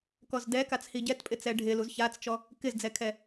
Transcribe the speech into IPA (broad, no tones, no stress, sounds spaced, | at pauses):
k ɔ z d ɛ k a t͡s h i ɟ ɛ t pʼ ɪ t͡s ɛ ɖʱ ɪ l u z ç a t͡s t͡ʃ ɔ | k ɪ z d͡z ɛ kʰ ɛ